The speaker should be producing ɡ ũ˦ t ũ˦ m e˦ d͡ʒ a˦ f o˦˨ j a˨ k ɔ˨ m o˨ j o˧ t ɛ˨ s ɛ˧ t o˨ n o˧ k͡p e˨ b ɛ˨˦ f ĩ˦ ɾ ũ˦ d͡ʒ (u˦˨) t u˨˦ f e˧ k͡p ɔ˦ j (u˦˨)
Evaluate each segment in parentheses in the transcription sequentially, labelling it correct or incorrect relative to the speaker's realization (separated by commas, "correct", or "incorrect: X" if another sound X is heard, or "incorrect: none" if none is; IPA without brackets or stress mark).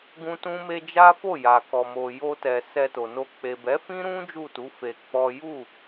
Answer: correct, correct